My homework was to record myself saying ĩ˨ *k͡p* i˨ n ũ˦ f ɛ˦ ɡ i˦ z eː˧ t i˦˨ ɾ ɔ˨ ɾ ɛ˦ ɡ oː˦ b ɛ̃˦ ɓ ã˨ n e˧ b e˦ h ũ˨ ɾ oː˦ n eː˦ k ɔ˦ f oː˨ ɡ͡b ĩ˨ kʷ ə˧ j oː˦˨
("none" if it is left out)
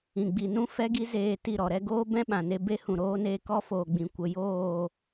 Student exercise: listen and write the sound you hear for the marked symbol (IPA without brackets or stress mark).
ɡ͡b